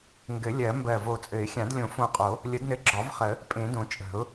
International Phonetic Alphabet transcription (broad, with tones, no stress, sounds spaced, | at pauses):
ŋ ɡ ɘ˨˩˦ lʲ ɜ˨˩˦ m b ɜ˧˩ v o˧˩ t͡sʼ ɘ˨˩˦ ɪ̯ xʲ ã˨˩˦ d lʲ õ˨˩˦ f õ˧˩ qʼ o˨˩˦ | lʲ ə˨˩˦ d n ɘ˧˩ ɡ͡ǁ ɒ˨˩˦ v χ ə˨˩˦ | pʼ ẽ˨˩˦ d õ˨˩˦ t͡ʃʼ ə̤˨˩˦ ʊ̯